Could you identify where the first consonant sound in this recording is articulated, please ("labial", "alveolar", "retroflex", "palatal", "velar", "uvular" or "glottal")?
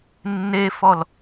alveolar